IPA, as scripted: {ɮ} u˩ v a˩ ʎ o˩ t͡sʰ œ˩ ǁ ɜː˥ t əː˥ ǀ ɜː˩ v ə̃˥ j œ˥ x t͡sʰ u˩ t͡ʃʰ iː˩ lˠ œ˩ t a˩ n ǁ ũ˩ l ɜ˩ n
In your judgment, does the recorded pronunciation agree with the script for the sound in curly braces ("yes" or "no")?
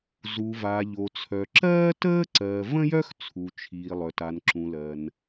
no